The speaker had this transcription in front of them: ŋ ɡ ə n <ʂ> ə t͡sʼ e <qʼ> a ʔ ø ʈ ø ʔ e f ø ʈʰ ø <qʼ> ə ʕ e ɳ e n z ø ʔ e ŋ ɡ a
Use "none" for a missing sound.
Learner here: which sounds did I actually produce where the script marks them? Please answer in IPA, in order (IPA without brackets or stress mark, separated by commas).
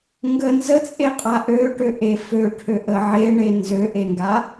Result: z, qʼ, ʔ